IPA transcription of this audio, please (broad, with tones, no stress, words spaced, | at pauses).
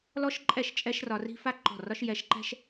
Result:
lɔ˦ʃǃʼɛ˦˨ʃ t͡ʃʼɛ˦ʃrɒ˧ri̤˦ fa˦ɡ͡ǃɔ̤˦˨ rɒ˦ʃjɛ˧ʃǃɛ̤˦ʃ